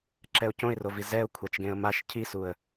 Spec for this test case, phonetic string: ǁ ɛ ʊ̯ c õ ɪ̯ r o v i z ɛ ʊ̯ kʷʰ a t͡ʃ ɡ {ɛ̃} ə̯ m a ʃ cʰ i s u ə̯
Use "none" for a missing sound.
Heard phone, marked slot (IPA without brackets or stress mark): ẽ